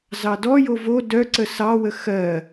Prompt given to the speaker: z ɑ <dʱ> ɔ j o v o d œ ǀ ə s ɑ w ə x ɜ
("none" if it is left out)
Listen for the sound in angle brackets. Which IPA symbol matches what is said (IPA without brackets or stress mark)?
d